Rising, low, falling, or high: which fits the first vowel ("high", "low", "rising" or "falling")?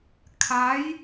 rising